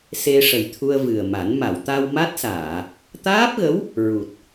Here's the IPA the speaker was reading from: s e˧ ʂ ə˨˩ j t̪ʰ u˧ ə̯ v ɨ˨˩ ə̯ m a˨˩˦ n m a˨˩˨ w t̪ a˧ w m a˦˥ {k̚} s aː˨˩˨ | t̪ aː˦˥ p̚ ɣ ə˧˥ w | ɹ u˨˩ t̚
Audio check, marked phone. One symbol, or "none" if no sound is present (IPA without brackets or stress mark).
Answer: t̚